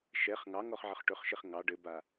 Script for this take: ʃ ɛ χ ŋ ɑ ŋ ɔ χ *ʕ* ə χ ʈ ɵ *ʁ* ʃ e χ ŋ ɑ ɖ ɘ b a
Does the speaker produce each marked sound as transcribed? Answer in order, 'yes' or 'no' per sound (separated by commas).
yes, no